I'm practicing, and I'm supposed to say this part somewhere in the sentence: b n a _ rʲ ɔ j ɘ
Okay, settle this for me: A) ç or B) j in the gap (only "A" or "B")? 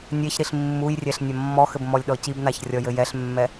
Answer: A